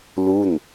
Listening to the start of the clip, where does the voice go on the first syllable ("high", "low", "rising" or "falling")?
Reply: falling